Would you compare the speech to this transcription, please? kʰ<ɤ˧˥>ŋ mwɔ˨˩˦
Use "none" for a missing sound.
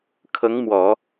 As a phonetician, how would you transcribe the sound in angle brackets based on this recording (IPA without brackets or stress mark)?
ɤ˧˥